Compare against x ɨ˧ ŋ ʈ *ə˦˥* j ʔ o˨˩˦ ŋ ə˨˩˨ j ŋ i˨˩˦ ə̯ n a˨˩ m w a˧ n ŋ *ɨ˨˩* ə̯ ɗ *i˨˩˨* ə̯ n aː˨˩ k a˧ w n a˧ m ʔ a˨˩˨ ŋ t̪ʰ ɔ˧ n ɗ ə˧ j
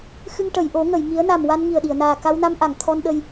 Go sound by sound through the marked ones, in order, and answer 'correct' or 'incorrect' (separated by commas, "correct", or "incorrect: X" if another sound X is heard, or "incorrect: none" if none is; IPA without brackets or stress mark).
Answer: incorrect: ə˨˩˨, incorrect: i˨˩, correct